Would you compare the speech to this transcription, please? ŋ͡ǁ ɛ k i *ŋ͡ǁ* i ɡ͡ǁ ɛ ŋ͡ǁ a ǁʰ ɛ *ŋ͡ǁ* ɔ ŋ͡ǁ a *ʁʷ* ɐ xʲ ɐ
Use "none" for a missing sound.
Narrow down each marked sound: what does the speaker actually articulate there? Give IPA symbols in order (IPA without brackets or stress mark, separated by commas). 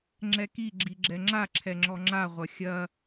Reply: ɡ͡ǁ, ŋ͡ǁ, ʁʷ